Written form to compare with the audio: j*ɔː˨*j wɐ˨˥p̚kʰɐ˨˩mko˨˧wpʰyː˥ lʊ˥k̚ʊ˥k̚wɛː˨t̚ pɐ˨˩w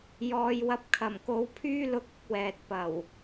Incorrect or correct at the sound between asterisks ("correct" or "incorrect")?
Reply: correct